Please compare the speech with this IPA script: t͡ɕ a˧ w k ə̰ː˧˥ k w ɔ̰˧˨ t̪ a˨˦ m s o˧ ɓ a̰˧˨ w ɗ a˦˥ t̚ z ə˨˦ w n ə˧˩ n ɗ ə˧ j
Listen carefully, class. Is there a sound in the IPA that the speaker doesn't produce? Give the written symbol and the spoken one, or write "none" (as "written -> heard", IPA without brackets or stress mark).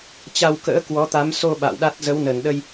ɔ̰˧˨ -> ɔ˨˦